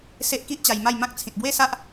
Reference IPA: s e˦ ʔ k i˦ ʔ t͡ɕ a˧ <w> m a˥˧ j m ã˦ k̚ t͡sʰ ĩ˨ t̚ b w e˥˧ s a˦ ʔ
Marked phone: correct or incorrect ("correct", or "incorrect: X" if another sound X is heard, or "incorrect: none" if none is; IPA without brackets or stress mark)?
incorrect: j